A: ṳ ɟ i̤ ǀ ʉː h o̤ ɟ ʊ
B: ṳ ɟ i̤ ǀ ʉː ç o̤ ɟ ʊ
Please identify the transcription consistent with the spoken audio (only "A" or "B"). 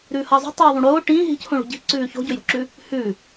B